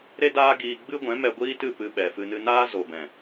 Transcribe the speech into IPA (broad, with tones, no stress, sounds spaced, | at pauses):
ɾ e˦ d aː˦ ɡ iː˧ ɡ͡b ɨ˦ ɡʷ ɛ̃˨˦ m ɛ˧ ɡʷ iː˦ t ɨ˦˨ p ɨ˧ ɓ ɛ˨ f ɨ˧ n ɨ˧ n aː˦ z o˨ b ɛ̃˨